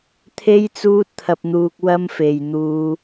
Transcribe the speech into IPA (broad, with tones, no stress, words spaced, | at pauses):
t̪ʰe˥j t͡suː˥t̚t̪ʰɐ˧p̚n̪uː˧k̚ wɐ˥m fe˨jn̪uː˧